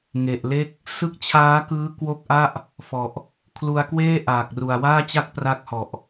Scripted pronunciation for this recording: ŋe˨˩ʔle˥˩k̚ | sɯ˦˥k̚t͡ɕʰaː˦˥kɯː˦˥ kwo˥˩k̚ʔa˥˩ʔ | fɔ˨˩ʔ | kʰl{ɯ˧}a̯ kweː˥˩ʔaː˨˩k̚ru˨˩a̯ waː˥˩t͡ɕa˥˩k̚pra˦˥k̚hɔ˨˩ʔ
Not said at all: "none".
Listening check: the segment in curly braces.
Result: u˧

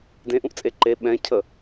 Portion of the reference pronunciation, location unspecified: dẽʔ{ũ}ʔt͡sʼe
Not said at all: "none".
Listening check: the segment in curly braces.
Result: ũ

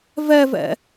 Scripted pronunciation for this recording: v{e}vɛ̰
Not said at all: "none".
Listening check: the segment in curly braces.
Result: ɛ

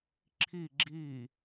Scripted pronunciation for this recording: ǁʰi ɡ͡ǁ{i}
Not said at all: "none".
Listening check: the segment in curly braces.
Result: i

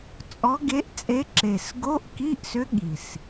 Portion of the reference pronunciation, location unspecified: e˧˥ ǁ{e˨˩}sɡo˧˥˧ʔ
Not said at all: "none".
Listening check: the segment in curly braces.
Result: e˨˩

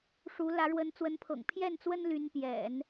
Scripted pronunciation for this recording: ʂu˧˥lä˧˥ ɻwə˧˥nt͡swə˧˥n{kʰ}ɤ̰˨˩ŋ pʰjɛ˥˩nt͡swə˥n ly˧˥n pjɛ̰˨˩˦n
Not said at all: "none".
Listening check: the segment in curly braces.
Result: pʰ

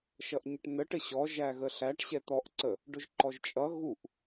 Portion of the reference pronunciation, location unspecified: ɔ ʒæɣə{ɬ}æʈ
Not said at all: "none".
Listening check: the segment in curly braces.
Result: ɬ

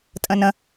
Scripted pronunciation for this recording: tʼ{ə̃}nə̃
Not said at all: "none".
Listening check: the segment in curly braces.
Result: ə̃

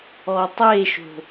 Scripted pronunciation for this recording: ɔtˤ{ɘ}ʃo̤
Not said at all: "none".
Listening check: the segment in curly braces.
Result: e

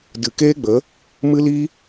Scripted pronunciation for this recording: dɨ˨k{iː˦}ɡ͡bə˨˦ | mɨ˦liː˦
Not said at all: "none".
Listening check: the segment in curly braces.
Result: eː˦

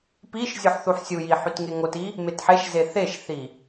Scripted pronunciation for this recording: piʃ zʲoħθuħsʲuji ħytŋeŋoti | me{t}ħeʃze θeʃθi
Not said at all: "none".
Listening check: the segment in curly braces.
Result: t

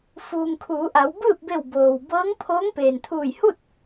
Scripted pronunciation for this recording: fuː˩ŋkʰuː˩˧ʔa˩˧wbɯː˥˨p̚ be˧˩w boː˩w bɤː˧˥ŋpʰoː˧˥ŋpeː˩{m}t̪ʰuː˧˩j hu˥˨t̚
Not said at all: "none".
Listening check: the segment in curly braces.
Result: n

